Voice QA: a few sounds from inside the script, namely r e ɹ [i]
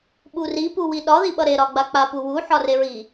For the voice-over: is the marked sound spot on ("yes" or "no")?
yes